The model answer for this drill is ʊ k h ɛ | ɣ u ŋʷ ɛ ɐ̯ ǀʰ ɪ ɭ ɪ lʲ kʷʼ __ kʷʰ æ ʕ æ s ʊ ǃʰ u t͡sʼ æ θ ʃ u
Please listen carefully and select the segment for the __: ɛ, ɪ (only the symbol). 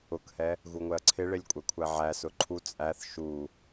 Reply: ɛ